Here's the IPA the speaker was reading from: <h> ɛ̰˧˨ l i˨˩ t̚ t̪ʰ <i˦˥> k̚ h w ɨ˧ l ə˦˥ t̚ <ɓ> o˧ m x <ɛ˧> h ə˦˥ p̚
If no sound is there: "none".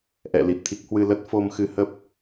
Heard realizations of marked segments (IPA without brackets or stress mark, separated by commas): ʔ, i˦˥, f, ɨ˧